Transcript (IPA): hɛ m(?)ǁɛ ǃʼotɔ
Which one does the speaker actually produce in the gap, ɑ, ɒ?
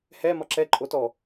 ɒ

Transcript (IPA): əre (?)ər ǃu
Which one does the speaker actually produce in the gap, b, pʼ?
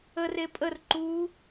pʼ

